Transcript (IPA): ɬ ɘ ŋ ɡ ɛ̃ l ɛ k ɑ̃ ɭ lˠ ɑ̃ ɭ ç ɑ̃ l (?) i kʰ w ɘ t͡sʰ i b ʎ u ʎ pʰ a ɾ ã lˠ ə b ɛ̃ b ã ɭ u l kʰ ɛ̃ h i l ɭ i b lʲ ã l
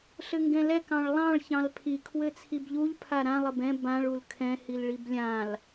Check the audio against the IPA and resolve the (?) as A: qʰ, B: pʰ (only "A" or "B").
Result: B